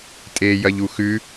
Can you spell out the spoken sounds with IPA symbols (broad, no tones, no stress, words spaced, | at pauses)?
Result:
tʼeːjɐʎuxʉ